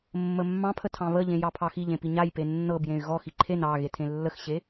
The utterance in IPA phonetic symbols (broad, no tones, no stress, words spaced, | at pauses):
mːəmːɑ̃pʰə tʰɑ̃βəʎẽ jɑpʰɑxiʎẽ piɲajpe nːɤb jẽy̯ɣɔxi ǃʰen ɑ ɣetʰẽlːəxɕe